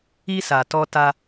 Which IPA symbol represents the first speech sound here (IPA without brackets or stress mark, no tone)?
i